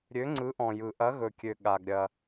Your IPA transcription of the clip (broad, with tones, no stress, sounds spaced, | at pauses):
ɾʲ ø˨˥ ŋ͡ǀ ɯ˨˥ ʔ ɔ̃˩ j ɯ˩ ʔ ɐ˨˥ ɣ ɵ˩ kʲ ø˩ ɠ a˩ ɡ ɾʲ ɐ˩